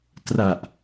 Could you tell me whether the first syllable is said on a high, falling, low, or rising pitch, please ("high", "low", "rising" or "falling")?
low